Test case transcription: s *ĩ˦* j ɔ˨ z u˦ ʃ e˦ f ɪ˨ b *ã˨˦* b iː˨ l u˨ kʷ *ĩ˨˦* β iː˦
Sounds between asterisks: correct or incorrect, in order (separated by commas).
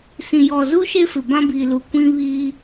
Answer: incorrect, incorrect, incorrect